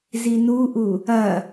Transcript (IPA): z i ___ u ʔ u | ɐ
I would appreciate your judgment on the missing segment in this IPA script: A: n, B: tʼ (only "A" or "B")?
A